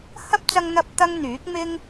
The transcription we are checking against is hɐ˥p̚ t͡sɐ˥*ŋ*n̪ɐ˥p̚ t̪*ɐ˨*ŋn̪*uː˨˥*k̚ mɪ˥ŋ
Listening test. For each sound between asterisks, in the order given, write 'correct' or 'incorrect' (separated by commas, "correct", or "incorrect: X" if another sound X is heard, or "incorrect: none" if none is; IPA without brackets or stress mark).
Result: correct, incorrect: ɐ˥, incorrect: yː˨˥